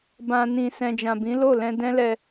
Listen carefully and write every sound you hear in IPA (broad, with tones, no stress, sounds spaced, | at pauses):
b ã˨ n ĩ˨ s ɛ̃˨ d͡ʒ ã˨ b ĩ˨˦ l o˦˨ l ɛ̃˧ d ɛ̃˦ l ɛ˧